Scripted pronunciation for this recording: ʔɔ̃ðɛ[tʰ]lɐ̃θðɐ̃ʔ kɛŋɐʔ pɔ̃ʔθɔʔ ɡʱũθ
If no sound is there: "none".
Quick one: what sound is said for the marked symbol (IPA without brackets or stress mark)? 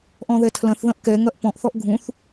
tʰ